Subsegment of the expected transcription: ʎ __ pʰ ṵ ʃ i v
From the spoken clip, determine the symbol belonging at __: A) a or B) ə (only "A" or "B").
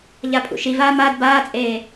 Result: A